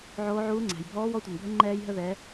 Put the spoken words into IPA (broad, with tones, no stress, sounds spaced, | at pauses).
ʕ oː˧˥ ʕ uː˧˥ ŋ͡ǀ æ̤˩ j bʱ ɔː˧˥ w ɔ˧˥ tʷ ɛ˩ n bʱ ə˧˥ ŋ͡ǃ ɛː˧ j ɦ ə˧ ð ɛ˩˧